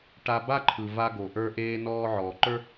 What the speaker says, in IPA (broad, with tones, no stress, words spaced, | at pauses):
ʈa˧ba˥ǃʰɯ˩va˧ ɡo˩ʔə˞˧ʔeː˧ nɔː˧ ʕɔː˩ǃə˞˥